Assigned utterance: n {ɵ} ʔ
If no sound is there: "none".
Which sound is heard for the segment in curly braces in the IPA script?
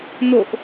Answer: o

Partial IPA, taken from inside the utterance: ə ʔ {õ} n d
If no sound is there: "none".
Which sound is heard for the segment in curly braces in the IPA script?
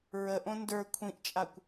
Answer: õ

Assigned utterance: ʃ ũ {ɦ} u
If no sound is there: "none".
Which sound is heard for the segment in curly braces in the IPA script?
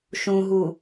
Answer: ɦ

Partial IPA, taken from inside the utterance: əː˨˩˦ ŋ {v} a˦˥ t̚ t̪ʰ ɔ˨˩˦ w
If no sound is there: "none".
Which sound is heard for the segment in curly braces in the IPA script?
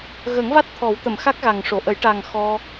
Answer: v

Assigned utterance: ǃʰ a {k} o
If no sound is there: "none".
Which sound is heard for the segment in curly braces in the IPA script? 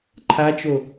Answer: t͡ʃ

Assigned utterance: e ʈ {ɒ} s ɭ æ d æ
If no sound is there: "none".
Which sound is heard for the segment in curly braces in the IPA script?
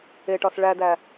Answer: ɒ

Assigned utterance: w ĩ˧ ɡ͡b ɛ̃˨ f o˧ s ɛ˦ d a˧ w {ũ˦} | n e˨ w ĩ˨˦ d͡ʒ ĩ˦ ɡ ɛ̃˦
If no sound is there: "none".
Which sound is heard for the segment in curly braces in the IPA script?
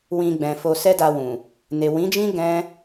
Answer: ũ˨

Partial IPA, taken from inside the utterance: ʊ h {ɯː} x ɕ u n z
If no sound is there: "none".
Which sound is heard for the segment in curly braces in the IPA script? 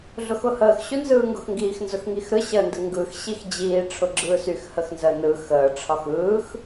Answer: əː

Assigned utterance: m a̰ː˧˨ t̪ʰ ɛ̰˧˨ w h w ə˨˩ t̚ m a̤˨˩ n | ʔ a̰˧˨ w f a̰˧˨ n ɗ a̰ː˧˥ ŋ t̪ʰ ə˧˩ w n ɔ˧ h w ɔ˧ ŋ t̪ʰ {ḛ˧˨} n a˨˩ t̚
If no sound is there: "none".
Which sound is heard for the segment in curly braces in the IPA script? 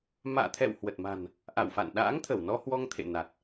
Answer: ḛ˧˨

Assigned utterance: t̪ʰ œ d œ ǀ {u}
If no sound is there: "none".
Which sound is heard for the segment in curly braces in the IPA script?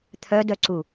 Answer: u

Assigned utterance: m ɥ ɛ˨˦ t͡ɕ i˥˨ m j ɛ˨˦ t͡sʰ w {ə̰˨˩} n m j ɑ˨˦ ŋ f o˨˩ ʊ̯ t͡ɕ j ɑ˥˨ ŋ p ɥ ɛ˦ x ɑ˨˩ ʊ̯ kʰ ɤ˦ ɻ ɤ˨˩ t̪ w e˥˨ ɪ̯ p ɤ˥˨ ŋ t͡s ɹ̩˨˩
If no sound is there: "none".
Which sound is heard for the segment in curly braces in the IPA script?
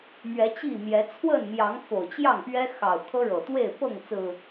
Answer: ə˥˨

